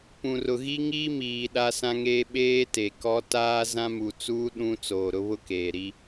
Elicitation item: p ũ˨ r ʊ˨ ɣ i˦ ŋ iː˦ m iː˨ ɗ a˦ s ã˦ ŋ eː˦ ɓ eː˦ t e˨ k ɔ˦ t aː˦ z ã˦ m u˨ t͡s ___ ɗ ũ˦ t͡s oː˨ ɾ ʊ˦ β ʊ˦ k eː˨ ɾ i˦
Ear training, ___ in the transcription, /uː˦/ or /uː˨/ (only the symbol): uː˦